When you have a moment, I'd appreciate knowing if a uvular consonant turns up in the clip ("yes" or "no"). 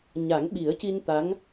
no